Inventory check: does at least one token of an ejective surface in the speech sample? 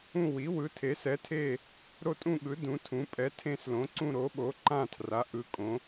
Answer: yes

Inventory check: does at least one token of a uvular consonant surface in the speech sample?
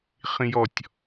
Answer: yes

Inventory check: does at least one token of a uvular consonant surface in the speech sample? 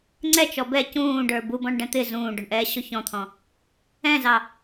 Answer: no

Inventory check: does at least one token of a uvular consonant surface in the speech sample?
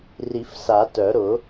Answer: no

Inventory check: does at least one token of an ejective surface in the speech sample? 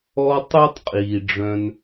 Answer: yes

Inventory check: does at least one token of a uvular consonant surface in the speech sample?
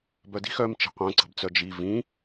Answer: yes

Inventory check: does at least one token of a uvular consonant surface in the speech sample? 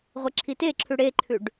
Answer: yes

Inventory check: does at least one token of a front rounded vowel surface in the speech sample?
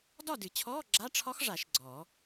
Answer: no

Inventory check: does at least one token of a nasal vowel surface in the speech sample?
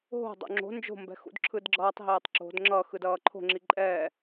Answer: no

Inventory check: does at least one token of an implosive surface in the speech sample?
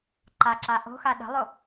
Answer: yes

